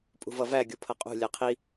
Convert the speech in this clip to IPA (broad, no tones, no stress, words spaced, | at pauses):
pʼṳvʌvæ ɡʲupʰʌqʼṳ lʲæqʰi